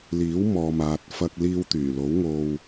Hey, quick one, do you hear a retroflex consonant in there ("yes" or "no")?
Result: no